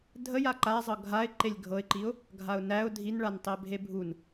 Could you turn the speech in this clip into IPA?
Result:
dʱ ə j a ǃ a zˤ ɤ ɡʱ a ɪ̯ ǃ e lʲ ɡʱ ɤ ɪ̯ ǃ i ʊ̯ | ɡʱ a ʊ̯ n æ ʊ̯ dʱ i n ɭ a n tˤ e bʱ e bʱ u n

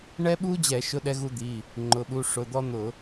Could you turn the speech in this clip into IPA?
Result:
ɳ ɛ˦ ɓ u˦ d͡ʑ ɛ˧˩˧ ʃ ʊ˦ ɗ ɛ˦ ɣ u˦ d̪ i˩˧˩ | ŋ͡ǃ ʊ˩˧˩ ɓ u˩˧˩ ʂ ʊ˩˧˩ d̪ ɔ˦ n̪ ʊ˧˩˧

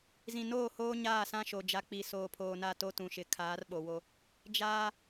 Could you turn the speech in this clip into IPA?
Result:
z ĩ˨ n oː˦˨ h oː˦ ɲ aː˦˨ s ã˦ ʃ o˨ d͡ʒ a˨˦ k͡p i˨ s oː˨ pʰ oː˨ n a˦˨ t o˦ t ũ˨ ʃ ɪ˨˦ kʰ aː˨˦ r ɓ o˨ w o˦ | d͡ʒ aː˦

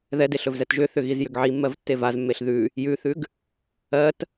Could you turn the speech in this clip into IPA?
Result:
ð ɛ d e ɬ ɵ v z ɛ t ʒ ʏ θ ʏ ɣ i z j ʏ ɡ ʕ i mː ɜ v tː e v a z mː e ɬ ð ʉ | j ʉ θ ʉ ɡ | ɜ t

